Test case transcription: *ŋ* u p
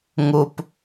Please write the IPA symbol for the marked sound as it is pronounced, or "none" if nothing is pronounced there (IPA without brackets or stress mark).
ŋ